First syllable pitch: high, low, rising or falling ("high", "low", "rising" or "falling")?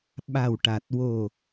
low